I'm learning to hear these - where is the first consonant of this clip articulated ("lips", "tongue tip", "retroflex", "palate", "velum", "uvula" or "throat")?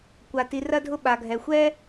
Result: velum